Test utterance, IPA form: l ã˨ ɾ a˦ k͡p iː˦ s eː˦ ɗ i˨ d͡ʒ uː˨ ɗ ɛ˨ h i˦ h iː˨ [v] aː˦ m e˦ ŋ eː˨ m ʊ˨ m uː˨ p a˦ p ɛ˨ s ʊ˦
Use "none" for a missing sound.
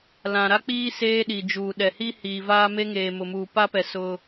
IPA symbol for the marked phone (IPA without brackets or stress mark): v